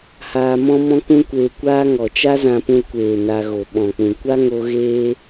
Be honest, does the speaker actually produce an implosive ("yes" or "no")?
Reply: yes